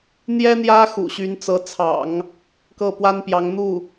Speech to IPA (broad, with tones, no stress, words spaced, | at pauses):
n̪jɛ˥n̪jä˥ xṵ˨˩ɕy˧˥n t͡sɤ˧˥ t͡sʰɑ̰˨˩˦ŋ | kɤ˥˩pwa˥npjɑ˧˥ŋ n̪u˥˩